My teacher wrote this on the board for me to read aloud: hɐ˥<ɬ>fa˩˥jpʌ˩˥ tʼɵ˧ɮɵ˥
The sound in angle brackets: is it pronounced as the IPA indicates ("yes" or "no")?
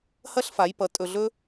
yes